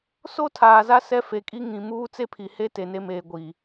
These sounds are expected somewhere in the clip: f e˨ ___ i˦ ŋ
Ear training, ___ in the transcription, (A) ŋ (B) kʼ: B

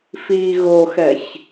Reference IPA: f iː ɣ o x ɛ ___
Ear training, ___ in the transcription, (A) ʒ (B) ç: B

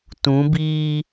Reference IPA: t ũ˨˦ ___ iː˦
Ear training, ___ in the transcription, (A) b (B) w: A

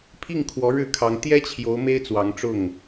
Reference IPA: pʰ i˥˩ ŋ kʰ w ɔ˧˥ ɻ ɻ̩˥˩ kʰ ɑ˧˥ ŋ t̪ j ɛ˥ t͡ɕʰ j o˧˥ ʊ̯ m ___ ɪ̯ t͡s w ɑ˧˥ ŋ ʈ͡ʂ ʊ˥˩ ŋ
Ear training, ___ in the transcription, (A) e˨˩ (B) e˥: B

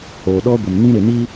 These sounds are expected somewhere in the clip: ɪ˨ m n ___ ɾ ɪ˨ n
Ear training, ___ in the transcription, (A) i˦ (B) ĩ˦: B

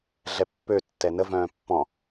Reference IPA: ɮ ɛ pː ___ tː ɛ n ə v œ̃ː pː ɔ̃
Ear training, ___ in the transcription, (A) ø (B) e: A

